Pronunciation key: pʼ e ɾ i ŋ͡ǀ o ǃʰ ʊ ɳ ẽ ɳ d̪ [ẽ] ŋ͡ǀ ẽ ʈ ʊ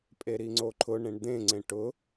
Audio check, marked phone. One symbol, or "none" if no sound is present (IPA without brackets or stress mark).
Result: ẽ